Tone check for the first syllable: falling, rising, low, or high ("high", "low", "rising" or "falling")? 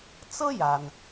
high